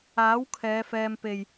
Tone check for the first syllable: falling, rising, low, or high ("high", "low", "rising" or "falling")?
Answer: rising